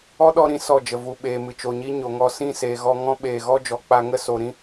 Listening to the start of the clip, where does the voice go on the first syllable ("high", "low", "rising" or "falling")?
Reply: high